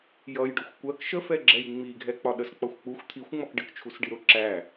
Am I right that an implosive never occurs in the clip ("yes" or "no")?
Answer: no